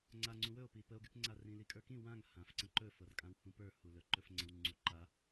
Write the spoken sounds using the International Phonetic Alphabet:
ŋ͡ǀ a ŋ͡ǀ ũ w ɵ o̯ p i p ə o̯ ɡ y k ŋ͡ǀ a r ĩ l i kʼ ə˞ k ĩ w ã ŋ h ã f ǀ ə̃ ǃ ɵ f ɤ r kʼ ã w h ũ p ə˞ h u l ɵ ǃ ɵ f ŋ͡ǀ ə̃ w ŋ͡ǀ u ǃ a

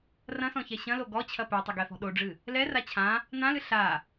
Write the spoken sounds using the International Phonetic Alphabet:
r ɐ̃ s ɔ̃ ç ɛ ɕ ɐ̃ l o ɡ ɔ t͡ɕʰ ɐ p ɛ tˤ ɐ ɡ ɛ f ɔ̤ ɗ o ɖ͡ʐ ɨ | l ɛ r a t͡ɕʰ ã | n ã l ɨ ɬ a

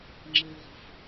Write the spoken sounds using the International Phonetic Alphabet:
ŋ͡ǁ ə w ʁ ə̤ f

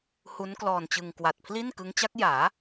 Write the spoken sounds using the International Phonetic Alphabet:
h u˦˥ n k l ɔː˧ n t͡ɕ ɯ˧ ŋ k w a˨˩ t̚ pʰ l i˥˩ n k ɯ˦˥ ŋ t͡ɕ a˦˥ k̚ j aː˩˦

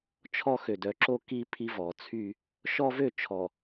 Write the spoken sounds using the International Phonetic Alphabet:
t͡ʃʰ ɔ˦ x ø˨ d œ˨ ǁ o˦ k i˦ pʰ i˦ v ɔ˨ t͡sʰ y˦ | ʃ ɔ˦ v ø˦˨ t͡ʃʰ ɔ˨

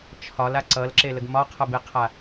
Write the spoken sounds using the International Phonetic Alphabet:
t͡ʃʰ ɒ l a ǀ ʌ l ǁ e l ə ɡ m ɒ qʰ ʌ b e qʰ a

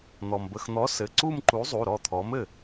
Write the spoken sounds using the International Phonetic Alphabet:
n̪ ɔ˩ m b ə˩˧˩ x n̪ ɔ˨˥ s ɘ˩˧˩ ǀ u˥˧ m ǃ u˨˥ zˤ u˩˧˩ ɾ ɔ˥˩ t̪ʰ ɔ˨˥ m ɘ˥˩

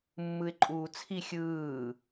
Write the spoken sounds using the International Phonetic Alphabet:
mː ɯ ɪ̯ ǃʼ uː t͡sʰ i xʲ ɯː

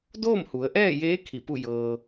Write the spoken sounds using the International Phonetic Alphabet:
d oː˥˨ m h u˩˧ ə̯ ʔ ɛː˥˨ j eː˧˥ kʰ i˧˩ p u˥˨ j ɤː˧

